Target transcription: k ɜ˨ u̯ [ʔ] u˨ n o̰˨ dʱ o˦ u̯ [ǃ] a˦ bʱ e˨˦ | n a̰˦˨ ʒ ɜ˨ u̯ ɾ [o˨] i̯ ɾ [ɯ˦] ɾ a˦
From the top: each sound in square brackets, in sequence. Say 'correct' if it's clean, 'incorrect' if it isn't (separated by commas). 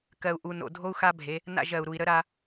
correct, incorrect, incorrect, incorrect